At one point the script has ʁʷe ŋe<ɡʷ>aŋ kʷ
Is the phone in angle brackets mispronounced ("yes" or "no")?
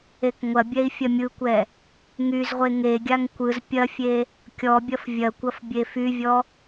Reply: yes